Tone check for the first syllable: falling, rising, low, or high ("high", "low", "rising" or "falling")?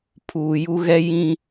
low